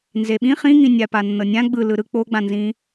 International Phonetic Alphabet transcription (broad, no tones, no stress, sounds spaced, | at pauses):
n z e ɓ ĩ χ ĩ ŋ ĩ nʲ a p a nː ɤ nʲ ã ɡ͡b ɯ l ɯ ɾ ɯ k͡p o ɡ͡b ã n z ĩ